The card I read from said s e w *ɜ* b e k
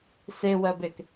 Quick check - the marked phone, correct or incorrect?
correct